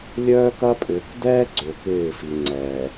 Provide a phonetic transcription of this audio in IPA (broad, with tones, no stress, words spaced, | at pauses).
lʲœː˦kɐ˦pʼʏː˨k dɛː˦ ɡ͡ǀø˨k ɪː˦˨fi˨ ŋ͡ǀɛː˨